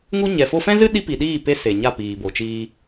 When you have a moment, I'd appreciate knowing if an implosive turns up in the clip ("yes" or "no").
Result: yes